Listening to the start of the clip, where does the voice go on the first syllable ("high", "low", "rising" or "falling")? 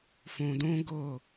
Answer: low